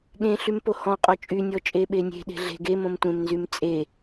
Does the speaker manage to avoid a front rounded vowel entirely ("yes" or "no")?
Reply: no